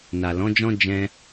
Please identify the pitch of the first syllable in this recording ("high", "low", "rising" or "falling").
low